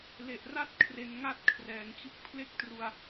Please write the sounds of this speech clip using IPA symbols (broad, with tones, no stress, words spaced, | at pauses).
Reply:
le˨˩ʔra˥˩t̚ kʰre˧nŋa˥˩t̚kʰrɛː˩˦ŋt͡ɕɯ˦˥k̚ pʰle˥˩k̚tru˧a̯